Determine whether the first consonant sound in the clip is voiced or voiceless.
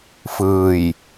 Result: voiceless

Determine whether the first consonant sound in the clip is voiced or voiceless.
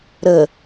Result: voiced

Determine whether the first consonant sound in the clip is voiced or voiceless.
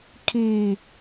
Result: voiceless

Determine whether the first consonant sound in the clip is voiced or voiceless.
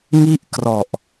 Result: voiced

